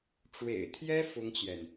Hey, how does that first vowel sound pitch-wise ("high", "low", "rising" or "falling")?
low